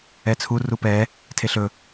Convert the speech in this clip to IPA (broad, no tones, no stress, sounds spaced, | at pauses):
ɛ t͡sʰ u r u p ɛ | tʰ e ɬ ɵ